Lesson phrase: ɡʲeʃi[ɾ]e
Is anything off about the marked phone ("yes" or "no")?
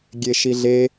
yes